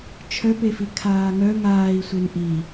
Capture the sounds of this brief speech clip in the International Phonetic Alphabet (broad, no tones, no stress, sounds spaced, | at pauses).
t͡ʃʰ œ p e f i kʰ aː ŋ œ ŋ aː i̯ sʷ e n ʔ i